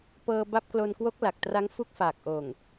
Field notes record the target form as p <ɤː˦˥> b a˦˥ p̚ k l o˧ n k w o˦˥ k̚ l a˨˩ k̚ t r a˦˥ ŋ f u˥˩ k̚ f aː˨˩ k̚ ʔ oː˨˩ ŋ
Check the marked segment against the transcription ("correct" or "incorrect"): incorrect